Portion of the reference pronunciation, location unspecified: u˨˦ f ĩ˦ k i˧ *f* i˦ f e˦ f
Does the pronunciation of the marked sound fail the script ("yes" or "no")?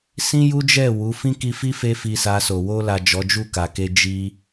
no